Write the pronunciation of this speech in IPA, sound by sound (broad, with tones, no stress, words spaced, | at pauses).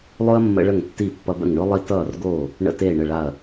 lˠʊ˦ɐ̯ mːə̰˦ɭə˥˨ŋtːi˥˨ pːʌ˦bə̰˥˨ŋ ɳʊ˦ lˠi˦ tʌː˥˨rɡoː˥˨ | ɳə̰˥˨teː˥˨ɳə˥˨ɭa˥˨ɐ̯